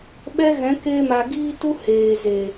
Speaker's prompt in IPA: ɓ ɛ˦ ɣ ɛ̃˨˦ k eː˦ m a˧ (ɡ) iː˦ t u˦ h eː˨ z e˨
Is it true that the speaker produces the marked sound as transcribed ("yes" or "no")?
yes